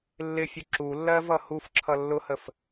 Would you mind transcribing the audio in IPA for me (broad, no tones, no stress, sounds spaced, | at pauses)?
lː ɪ fʲ ʊ ǁ u lː ɜ v ʌ h u f ǁʰ ʌ lː ʊ h ə f